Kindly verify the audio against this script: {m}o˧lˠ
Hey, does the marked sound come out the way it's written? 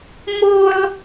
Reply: yes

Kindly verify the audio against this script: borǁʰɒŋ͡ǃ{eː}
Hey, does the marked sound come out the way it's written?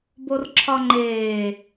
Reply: yes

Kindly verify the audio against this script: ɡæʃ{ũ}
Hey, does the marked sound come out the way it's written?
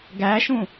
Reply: yes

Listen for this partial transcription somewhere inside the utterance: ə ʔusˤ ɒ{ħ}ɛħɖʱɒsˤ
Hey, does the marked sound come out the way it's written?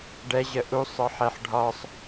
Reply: yes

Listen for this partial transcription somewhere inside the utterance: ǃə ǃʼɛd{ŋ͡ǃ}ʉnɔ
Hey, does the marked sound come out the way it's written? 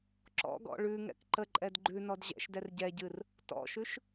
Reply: no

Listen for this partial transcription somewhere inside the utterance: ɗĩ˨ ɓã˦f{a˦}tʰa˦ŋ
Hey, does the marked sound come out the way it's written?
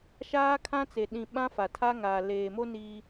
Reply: no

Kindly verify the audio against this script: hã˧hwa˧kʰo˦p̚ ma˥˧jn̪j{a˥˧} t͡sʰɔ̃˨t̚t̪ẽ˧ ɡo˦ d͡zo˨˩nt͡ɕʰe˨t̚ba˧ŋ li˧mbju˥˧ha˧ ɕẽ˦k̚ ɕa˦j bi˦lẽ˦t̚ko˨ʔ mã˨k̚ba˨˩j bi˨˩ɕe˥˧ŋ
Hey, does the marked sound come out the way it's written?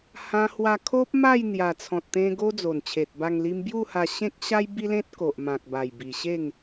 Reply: no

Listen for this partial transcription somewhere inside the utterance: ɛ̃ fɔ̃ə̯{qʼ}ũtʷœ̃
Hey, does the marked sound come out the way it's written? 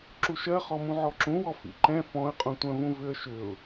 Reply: yes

